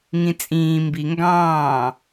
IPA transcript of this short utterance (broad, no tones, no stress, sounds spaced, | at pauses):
ŋ ĩ t͡sʼ ĩː m b i ŋ ɡ ɑ̃ː